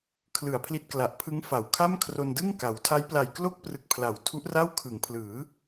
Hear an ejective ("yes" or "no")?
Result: no